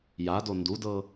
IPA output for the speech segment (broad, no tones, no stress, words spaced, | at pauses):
jado ndudɤ